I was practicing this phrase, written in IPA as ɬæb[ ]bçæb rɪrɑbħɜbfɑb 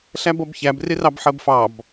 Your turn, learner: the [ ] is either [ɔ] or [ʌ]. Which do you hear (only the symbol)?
ʌ